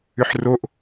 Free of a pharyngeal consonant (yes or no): no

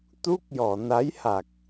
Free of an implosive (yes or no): yes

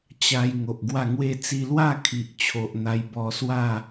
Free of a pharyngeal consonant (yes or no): yes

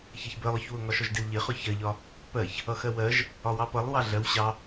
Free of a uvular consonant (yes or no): no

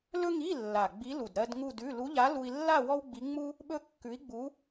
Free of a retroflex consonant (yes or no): yes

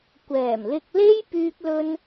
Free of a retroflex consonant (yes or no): yes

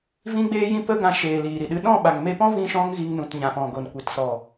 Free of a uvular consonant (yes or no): yes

